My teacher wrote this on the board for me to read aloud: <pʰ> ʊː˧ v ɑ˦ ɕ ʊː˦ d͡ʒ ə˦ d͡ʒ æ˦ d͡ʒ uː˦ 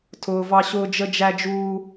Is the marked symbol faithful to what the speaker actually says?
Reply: no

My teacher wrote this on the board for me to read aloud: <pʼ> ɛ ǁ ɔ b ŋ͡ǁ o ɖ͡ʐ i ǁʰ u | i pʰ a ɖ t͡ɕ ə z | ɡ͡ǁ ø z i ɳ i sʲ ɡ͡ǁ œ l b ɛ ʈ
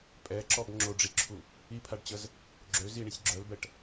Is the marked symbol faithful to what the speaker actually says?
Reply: yes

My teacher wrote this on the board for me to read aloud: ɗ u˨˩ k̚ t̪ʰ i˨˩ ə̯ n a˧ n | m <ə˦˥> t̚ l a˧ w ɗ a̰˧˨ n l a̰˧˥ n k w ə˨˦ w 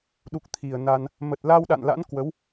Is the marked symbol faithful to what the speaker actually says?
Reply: no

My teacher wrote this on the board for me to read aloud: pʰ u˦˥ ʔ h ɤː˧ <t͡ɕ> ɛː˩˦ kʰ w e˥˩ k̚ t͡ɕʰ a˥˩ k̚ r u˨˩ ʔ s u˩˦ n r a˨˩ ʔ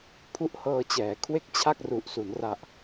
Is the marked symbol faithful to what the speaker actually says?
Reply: yes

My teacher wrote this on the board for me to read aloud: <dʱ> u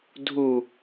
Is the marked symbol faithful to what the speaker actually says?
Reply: yes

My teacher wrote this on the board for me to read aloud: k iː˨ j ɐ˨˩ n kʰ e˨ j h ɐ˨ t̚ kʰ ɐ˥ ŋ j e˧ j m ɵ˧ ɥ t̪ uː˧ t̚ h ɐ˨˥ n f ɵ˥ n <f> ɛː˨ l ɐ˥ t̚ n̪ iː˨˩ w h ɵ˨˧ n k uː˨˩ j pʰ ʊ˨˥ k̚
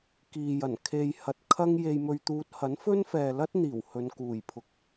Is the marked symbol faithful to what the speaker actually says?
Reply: yes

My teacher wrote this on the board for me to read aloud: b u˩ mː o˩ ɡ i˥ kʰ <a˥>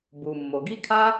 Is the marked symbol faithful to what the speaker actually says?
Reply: yes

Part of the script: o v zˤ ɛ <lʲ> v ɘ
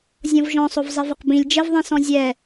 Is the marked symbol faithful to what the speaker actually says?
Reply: no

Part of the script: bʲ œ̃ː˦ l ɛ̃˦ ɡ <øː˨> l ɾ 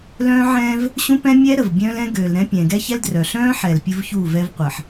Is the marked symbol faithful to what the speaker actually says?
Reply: yes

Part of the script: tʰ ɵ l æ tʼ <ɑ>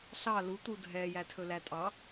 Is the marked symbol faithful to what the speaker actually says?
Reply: yes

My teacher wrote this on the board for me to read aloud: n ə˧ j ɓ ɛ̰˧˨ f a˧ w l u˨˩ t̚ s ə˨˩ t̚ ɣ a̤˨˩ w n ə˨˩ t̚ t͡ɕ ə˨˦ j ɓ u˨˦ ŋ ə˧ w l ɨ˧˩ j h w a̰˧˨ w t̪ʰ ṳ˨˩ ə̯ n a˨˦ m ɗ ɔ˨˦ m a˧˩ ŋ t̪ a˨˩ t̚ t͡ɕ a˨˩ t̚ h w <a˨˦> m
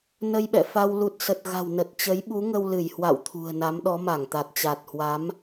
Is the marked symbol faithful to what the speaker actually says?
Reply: yes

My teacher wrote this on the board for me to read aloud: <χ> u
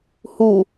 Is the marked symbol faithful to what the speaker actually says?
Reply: no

